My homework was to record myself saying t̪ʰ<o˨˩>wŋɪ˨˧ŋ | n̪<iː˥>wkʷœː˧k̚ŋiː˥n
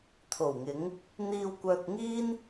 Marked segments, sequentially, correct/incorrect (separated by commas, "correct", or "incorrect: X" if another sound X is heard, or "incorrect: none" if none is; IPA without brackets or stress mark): correct, incorrect: iː˧